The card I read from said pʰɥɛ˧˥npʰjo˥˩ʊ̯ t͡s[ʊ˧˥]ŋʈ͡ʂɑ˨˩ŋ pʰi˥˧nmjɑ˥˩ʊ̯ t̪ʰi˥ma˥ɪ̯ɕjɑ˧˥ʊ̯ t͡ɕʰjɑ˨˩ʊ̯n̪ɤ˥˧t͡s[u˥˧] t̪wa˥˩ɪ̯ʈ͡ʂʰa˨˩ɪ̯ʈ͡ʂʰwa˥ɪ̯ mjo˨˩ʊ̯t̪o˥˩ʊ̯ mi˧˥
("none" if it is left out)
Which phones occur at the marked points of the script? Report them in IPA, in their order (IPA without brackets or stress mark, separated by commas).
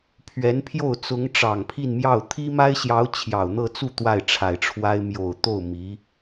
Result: ʊ˧˥, u˥˧